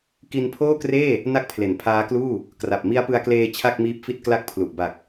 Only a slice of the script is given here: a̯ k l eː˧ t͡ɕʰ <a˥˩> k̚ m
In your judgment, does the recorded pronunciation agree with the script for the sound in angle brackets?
yes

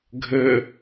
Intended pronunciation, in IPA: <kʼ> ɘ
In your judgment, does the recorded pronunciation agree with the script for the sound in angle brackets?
no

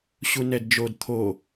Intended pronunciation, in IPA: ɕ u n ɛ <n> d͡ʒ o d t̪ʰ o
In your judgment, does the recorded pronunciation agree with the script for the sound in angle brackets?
no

